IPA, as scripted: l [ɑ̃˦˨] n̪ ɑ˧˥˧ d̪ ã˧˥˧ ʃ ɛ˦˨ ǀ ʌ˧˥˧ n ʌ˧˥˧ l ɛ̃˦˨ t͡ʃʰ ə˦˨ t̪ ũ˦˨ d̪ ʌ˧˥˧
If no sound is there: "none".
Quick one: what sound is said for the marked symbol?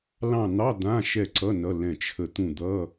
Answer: ɑ̃˦˨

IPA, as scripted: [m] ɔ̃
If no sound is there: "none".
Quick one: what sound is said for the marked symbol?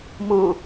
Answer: m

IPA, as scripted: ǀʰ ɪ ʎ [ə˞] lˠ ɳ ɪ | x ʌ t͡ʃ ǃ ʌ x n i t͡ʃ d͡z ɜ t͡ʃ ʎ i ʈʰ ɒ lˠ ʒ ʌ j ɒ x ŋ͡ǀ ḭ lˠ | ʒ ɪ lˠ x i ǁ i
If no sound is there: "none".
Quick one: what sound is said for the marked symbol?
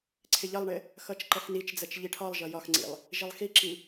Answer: ʌ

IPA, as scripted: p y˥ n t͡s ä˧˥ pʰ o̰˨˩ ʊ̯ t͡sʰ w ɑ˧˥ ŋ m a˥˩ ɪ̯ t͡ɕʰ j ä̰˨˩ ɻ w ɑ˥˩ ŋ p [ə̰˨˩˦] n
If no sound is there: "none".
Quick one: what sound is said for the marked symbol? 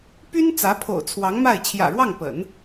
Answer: ə̰˨˩˦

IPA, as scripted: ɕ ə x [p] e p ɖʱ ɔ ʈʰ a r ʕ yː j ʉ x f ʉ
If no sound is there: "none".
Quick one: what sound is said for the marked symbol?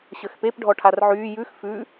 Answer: p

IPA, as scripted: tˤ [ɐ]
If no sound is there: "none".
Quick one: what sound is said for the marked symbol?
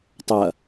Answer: ɐ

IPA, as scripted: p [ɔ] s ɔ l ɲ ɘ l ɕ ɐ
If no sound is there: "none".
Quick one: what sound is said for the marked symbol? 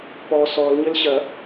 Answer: ɔ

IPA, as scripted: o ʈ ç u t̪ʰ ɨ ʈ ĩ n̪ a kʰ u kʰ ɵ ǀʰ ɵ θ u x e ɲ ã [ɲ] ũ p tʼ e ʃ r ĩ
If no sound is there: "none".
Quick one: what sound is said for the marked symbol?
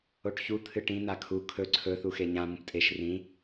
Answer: m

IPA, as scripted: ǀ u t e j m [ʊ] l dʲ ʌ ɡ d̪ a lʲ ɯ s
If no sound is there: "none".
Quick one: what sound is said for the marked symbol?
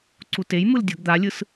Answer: ɯ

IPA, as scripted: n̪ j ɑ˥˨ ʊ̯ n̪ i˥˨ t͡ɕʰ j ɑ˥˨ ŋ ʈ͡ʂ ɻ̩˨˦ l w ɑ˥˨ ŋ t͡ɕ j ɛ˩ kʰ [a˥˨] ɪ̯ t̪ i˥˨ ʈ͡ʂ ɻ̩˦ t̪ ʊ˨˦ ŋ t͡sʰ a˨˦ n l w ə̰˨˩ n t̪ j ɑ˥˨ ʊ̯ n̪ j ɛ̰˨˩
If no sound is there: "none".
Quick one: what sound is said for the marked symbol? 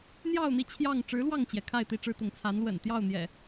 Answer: a˥˨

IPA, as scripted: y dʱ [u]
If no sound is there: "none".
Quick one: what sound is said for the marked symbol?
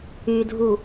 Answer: u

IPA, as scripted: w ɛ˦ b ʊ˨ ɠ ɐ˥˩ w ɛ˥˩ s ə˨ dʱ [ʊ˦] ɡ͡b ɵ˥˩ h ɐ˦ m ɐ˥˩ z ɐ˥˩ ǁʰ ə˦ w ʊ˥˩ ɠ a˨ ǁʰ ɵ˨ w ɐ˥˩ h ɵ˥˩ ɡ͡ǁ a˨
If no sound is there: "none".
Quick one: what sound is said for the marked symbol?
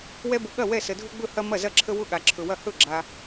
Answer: ʊ˦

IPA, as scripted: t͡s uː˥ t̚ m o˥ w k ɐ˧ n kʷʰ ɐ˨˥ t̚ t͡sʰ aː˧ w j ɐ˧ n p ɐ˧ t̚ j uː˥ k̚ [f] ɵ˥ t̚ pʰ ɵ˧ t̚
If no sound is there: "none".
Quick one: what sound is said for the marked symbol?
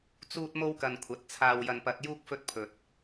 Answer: f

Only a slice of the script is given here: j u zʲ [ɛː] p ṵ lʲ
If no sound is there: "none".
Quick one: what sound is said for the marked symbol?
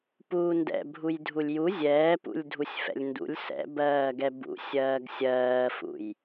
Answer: ɛː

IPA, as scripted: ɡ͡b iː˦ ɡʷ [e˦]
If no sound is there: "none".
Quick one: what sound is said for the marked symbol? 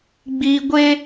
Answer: e˦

